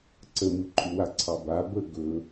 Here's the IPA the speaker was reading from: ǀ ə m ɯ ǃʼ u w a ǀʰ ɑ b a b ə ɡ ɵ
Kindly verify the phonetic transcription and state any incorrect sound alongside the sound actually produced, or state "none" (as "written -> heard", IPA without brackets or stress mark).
none